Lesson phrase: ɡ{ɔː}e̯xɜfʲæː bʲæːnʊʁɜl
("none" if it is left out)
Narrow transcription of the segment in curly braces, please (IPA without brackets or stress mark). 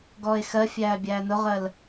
ɔː